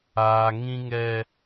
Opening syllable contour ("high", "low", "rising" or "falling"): high